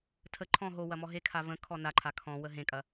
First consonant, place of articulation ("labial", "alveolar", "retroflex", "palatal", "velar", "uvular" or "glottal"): alveolar